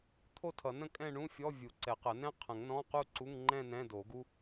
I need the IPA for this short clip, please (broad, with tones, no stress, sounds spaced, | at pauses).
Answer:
t̪ʰ o˥˧ tʰ ʌ˨˩˦ n ə̃˥˧ kʼ ɛ̃˥˧ ɳ ũ˧˥˧ fʲ ɔ˧˥˧ vʲ u˨˩˦ ǀ ɛ˨˩˦ q ə˨˩˦ n ɛ̃˥ qʰ ə̃˨˩˦ ŋ n ɔ̃˧˥˧ q u˥˧ ǀ u˧˥˧ ŋ ŋ͡ǃ ɛ̃˥˧ n ɛ̃˧˥˧ d o˨˩˦ ɡ u˥